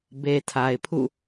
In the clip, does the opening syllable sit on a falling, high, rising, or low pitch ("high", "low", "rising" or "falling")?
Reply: low